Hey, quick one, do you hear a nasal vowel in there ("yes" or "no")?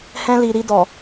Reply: yes